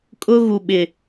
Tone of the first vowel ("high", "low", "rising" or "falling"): high